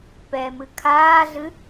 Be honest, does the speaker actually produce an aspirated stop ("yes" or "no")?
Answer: yes